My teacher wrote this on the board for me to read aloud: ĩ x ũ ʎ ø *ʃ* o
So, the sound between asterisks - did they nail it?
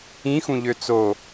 no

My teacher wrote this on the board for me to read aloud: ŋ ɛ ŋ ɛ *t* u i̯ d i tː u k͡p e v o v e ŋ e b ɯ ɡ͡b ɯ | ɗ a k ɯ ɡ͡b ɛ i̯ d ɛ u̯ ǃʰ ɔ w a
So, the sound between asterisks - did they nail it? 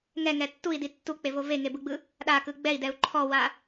no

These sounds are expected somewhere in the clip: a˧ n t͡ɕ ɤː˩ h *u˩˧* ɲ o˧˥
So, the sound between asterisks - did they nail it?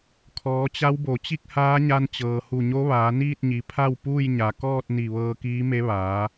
no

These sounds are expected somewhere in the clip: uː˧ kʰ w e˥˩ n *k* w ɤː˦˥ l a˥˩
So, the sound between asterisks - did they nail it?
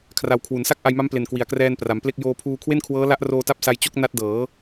no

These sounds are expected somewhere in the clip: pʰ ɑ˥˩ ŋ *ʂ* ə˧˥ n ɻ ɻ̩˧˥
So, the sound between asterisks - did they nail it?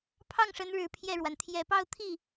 yes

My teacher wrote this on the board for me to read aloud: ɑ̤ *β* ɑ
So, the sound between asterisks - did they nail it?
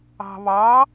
yes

